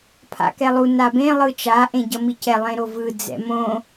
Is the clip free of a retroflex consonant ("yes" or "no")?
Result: yes